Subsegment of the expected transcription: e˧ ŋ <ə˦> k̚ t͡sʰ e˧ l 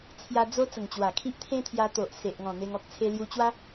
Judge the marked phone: incorrect: ɔ˦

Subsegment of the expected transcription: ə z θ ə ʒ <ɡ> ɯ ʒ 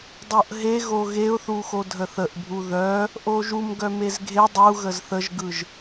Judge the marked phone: correct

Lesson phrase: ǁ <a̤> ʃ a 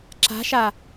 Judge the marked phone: correct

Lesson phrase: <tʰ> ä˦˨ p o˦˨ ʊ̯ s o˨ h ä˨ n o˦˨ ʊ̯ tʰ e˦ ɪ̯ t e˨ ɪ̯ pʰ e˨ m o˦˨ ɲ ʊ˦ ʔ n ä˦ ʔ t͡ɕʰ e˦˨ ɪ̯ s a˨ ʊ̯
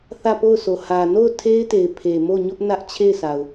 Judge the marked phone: incorrect: θ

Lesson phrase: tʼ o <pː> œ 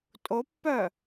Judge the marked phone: correct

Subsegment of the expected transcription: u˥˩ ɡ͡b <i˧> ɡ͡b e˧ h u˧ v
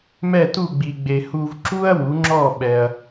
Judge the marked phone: correct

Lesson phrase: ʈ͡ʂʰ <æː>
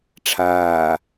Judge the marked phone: incorrect: aː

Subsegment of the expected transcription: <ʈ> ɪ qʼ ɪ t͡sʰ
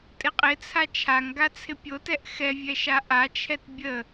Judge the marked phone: incorrect: tʼ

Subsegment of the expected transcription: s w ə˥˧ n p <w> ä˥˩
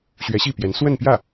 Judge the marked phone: incorrect: j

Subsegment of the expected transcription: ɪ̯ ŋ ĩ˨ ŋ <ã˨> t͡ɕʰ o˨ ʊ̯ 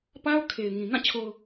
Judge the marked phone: incorrect: ã˦˨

